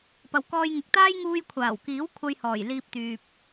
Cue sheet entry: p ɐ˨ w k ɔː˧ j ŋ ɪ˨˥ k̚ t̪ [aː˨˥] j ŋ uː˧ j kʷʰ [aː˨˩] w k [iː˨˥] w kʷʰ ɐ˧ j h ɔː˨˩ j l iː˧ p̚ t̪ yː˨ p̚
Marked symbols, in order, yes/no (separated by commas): no, yes, yes